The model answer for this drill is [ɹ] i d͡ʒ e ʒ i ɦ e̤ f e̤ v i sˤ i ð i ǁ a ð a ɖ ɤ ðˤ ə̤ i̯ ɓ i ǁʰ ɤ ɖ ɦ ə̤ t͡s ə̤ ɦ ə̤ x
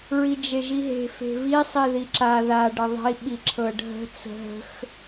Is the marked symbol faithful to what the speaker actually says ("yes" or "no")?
yes